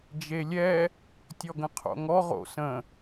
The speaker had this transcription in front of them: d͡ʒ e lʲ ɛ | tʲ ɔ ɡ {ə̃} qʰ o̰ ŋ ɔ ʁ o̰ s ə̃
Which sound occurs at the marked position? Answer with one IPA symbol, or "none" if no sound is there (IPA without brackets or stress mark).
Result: ə̃